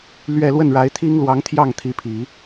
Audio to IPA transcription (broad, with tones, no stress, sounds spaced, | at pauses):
l ɥ ɛ˥˧ l w ə˥˩ n ɻ a˧˥ ɪ̯ t̪ʰ i˥ ŋ l w ɑ˧˥ ŋ t̪ʰ j ɑ˥˩ ŋ t̪ʰ i˧˥ pʰ i˨˩˦